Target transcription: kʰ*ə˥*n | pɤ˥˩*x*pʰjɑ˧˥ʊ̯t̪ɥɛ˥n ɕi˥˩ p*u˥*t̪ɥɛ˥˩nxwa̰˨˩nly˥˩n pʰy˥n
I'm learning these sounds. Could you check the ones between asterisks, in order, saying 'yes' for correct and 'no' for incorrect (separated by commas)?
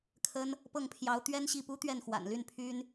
yes, no, yes